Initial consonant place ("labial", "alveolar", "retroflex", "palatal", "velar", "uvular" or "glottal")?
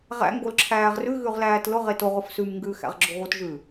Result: uvular